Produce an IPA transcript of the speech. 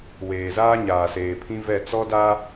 w eː˨ z aː˦ ɲ aː˨ s eː˨ pʰ ĩ˦ v ɛ˦˨ t͡s ɔ˦ d a˦

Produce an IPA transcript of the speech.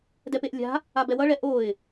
d ɛ p e ʔ lʲ a̤ | a b ɛ w ʌ ɭ ɛ ʔ o ɪ̯

